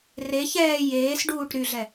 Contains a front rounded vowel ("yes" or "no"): yes